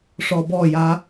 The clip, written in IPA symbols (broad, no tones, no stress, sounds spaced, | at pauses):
ʂ ɔ b ɔ j a